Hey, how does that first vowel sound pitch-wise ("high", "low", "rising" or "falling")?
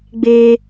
high